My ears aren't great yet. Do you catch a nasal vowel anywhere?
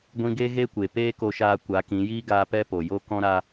yes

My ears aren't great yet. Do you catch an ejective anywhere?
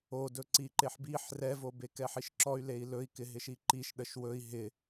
no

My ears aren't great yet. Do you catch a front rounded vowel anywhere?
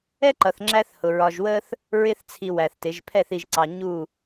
no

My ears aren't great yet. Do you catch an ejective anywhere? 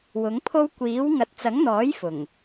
no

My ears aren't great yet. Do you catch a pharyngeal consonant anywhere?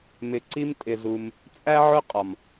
yes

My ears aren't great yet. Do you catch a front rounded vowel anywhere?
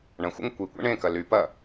yes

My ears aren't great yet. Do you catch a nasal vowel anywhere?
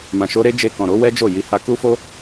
yes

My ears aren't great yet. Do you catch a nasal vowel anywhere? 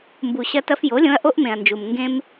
yes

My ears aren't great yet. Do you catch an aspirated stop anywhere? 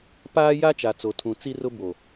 yes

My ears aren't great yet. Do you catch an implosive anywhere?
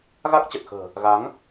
no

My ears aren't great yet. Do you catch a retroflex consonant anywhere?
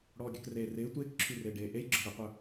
yes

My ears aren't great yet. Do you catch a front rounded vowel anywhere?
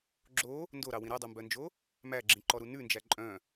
yes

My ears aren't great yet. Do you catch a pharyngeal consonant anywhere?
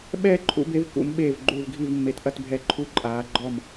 no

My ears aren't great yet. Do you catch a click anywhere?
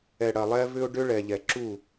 yes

